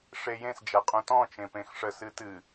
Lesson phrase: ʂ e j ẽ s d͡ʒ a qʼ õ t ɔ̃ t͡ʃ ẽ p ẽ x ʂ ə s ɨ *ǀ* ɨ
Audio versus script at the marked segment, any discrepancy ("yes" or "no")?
yes